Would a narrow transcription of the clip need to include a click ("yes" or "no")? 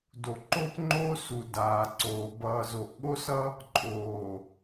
yes